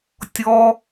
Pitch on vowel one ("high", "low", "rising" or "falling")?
high